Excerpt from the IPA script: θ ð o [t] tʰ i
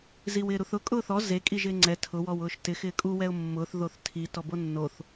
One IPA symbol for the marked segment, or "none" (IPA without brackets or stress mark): θ